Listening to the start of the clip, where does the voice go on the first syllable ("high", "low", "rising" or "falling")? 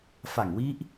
low